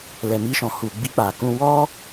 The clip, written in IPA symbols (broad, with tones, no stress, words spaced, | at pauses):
lɛ˨mi˧ʃɔ̃˨hu˨ ɡ͡bi˧k͡pa˨kũ˧ wɔ˦